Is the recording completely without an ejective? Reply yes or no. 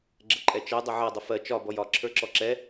no